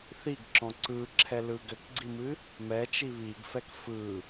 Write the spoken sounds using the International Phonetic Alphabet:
θiɡǁɔ̃ ǀɯǁʰɛlɯ ɡɘkɡ͡ǀimɨ | mɛt͡ʃi βiɡfɛk fɯ

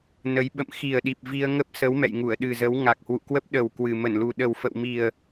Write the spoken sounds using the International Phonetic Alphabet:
nə˨˦j ɓə̰˧˨mxi˨˩ə̯ɗi˨˩p̚ vi˧ə̯ŋə˦˥p̚sə˨˦w mɛ̰˧˨jŋu˧˩ə̯ɗɨ˨˩zə˨˦w ŋa˨˩k̚hwṵ˧˨kwə˦˥p̚ ɗə˨˩w kwɨ˨˩ mə˧˩nlu˨˩ ɗə˨˩wfə̰˧˨wmi˨˩ə̯

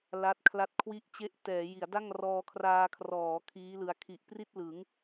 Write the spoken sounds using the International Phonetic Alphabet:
la˦˥t̚kʰla˦˥t̚kʰwi˥˩ʔt͡ɕe˥˩ʔ tɛː˩˦ji˩˦a̯da˥˩ŋrɔː˧ kʰraː˧kʰrɔː˩˦ kʰiː˦˥lɯ˧a̯ kʰi˨˩ʔpri˥˩t̚lɯ˩˦ŋ

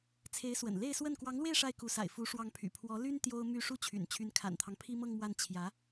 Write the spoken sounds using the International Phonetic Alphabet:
t͡sʰe˧˥ɪ̯swə̰˨˩n le˥˧ɪ̯swə˥˩n kwɑ˧˥ŋlwe˥˧ɪ̯ ʂa˥˩ɪ̯ku˧˥sa̰˨˩ɪ̯ fu˧˥ ʂwɑ˧˥ŋpʰy̰˨˩ pʰwɔ˧˥ ly˥n t̪jo˥ʊ̯my˥ ʂu˥˩t͡ɕʰy̰˨˩n t͡ɕʰy˧˥n kʰa̰˨˩nt̪ʰɑ˦ŋ pʰi˥mɤ˥˧ŋmwa˥˩n t͡ɕʰjä˧˥

